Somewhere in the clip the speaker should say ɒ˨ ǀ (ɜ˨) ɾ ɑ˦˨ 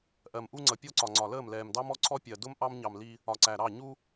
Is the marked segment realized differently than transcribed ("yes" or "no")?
yes